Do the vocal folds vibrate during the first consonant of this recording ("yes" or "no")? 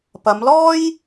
no